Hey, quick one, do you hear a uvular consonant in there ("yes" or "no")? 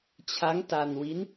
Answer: no